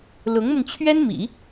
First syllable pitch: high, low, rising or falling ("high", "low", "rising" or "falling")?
rising